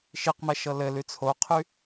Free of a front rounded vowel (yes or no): no